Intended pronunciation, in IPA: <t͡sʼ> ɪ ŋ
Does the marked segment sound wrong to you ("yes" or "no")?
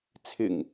yes